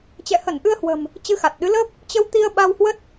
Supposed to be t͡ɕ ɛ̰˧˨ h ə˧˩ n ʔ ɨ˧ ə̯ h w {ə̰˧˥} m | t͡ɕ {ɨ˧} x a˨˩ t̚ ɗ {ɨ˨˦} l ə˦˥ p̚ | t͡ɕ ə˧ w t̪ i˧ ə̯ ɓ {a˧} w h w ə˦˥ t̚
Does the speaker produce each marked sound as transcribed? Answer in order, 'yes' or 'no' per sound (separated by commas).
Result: no, yes, yes, yes